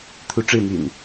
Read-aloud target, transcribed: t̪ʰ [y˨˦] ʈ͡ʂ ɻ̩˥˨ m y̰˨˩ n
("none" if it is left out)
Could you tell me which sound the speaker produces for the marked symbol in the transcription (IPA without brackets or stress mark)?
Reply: u˨˦